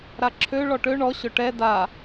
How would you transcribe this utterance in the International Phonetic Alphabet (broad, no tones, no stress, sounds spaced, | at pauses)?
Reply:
ɾ a ǁʰ ø ɭ ɔ ʈ ø ɳ ɔ ɕ ɵ ʈ ɛ d a